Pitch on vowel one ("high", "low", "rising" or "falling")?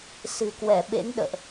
low